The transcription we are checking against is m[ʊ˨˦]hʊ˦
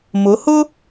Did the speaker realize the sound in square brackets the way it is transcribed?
yes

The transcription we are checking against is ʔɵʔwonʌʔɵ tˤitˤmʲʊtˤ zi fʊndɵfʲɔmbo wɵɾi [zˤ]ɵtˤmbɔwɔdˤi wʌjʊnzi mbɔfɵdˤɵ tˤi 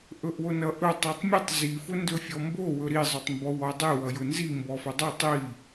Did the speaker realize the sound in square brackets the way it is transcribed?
yes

